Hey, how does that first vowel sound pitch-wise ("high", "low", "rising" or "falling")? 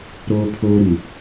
high